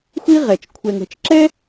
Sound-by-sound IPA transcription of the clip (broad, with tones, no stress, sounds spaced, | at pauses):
xʷ i˥ ʁ ɛ˩ t͡ʃ kʷʰ ɛ˨ ŋ ɛ̤˨ t͡ʃ ǁ ɛ˥